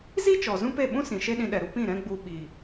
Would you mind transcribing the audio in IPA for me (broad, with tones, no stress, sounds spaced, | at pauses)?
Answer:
z i˦ t͡ʃ ɔ˨ z ũ˦ p e˦˨ ɓ ũ˦ s ĩ˨ ʃ e˦ ɗ ĩ˧ ɗ ɛ˨ ɾ u˦ p ĩ˦˨ ɾ ɛ̃˦ ɡ͡b u˧ ɓ i˨